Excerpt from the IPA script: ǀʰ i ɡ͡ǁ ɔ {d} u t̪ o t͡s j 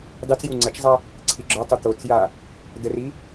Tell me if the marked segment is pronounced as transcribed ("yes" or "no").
no